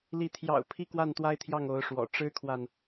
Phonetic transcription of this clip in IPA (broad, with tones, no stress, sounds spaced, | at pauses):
l i˧˥ t̪ʰ j ɑ̰˨˩ ʊ̯ pʰ i˥˧ k w a˥˩ n t̪ w a˥ ɪ̯ t̪ʰ j ɑ˥˩ ŋ o˧˥ ʊ̯ ʂ w ɔ̰˨˩ ʈ͡ʂ ɻ̩˥ kʰ w a˨ n